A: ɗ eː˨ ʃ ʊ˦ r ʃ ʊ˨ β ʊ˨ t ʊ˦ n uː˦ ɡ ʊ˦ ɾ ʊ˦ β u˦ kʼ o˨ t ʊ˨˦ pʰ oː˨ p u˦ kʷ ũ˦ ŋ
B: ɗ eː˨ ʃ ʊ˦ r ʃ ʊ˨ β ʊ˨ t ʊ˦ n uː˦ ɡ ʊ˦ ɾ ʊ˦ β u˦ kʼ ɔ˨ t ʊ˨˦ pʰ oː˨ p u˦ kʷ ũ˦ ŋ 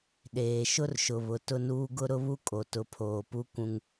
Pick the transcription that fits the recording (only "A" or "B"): A